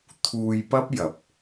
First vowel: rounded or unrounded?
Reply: rounded